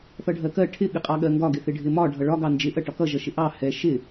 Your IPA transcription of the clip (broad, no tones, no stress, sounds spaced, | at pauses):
θ ʌ ɖʱ ɜ k ɜ ʈʰ ɪ ɠ ɪ qʼ ɑ ɠ ɜ ŋ ɡ ɒ ɡ ɪ θ ɪ ɖʱ ɪ m ɒ ɖʱ ʌ ɭ ɒ ɡ ɑ n d͡ʒ ɪ ʔ ɜ ʈ ɒ k ʌ ʒ ʌ ʃ ɪ ʔ ɑ h ɛ ʃ ɪ